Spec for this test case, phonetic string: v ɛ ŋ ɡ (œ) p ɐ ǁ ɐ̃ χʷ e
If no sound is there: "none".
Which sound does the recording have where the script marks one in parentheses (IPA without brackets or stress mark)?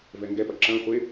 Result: ɛ